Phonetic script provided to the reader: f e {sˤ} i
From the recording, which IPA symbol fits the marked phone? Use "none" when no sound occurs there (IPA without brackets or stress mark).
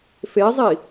zˤ